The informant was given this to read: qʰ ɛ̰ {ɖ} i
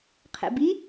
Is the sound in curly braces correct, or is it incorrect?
incorrect